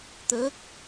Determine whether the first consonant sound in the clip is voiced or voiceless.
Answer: voiceless